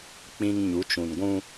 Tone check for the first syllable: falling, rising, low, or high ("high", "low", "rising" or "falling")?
high